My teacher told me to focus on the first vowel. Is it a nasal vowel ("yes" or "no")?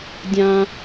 yes